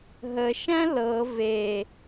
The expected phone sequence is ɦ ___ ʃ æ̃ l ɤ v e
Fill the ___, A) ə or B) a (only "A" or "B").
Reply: A